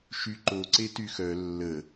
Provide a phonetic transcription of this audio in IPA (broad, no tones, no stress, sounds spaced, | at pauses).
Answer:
ʃ y ǃ o ǀ e t y x œ lː ə